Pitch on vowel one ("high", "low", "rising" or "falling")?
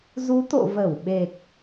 rising